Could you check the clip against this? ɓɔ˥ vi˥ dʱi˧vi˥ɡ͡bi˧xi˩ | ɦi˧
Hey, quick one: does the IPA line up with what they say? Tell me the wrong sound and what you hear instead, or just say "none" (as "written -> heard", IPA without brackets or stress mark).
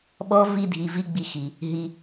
none